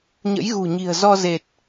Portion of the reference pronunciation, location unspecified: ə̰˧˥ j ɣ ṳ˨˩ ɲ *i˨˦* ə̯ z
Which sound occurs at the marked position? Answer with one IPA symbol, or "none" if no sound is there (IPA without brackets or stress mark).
i̤˨˩